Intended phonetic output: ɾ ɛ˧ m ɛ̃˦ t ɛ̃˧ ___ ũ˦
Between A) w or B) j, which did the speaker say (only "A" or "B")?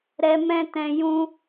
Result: B